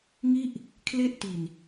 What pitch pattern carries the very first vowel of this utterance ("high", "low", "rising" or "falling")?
falling